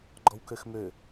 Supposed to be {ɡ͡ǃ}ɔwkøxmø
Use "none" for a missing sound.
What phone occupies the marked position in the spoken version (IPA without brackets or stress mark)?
ɡ͡ǃ